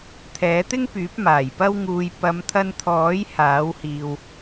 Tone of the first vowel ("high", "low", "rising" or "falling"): rising